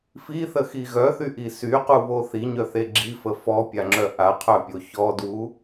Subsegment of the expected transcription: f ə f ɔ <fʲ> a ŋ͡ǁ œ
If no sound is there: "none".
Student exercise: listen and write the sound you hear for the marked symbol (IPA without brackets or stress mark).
pʲ